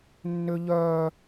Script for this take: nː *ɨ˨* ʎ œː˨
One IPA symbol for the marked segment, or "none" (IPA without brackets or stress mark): ʏ˨